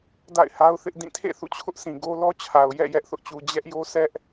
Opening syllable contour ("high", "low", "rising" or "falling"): falling